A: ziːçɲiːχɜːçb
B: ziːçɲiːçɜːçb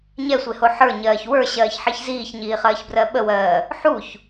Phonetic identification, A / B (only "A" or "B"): A